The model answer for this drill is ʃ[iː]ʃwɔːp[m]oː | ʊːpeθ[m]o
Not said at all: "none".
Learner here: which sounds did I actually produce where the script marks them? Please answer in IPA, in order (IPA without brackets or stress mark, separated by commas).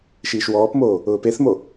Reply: iː, m, m